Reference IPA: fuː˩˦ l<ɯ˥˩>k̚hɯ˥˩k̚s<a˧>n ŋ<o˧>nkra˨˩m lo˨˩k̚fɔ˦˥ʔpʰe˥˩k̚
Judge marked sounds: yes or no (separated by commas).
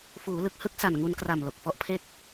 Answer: no, no, no